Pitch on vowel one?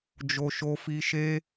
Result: high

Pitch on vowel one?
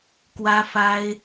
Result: high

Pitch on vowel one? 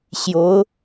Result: rising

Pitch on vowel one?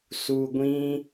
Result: low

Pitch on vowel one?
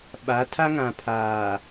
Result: rising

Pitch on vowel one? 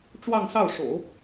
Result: falling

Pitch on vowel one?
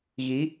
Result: rising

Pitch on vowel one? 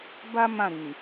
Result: high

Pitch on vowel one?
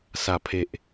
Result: low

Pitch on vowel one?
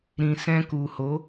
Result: low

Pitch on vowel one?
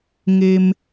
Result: low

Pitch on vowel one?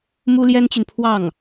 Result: high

